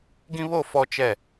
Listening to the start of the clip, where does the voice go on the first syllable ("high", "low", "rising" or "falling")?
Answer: high